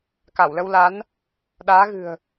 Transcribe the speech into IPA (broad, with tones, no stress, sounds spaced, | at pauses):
k a˧˩ w l ə˧ w l a˨˦ n | ɗ aː˨˦ ɣ ɨ̤˨˩ ə̯